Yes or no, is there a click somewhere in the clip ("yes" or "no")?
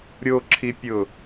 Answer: yes